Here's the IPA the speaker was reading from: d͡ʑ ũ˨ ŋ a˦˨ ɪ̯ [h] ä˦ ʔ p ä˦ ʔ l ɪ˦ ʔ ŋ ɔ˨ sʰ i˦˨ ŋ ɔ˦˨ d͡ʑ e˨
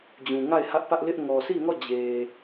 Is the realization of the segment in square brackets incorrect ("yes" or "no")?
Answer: no